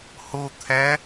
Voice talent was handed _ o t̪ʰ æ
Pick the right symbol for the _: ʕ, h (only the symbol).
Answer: h